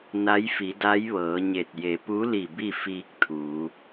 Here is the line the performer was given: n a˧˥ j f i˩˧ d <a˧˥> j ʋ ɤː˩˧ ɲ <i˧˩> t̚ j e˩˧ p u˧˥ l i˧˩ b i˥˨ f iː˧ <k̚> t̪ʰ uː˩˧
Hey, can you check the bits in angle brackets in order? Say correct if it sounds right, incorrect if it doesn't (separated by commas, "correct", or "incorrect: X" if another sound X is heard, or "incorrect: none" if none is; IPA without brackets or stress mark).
correct, incorrect: e˧˩, correct